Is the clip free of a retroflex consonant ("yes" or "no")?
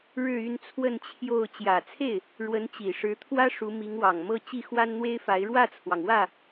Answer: no